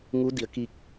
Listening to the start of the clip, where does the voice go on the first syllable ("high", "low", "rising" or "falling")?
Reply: rising